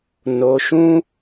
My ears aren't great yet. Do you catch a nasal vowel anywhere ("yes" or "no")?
yes